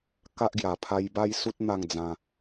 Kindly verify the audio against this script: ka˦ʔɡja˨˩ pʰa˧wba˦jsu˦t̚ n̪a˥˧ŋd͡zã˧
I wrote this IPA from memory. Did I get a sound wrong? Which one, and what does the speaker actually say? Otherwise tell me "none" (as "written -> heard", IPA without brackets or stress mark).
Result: w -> j